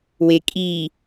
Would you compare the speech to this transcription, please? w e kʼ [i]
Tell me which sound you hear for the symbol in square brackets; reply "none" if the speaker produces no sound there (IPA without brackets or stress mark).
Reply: i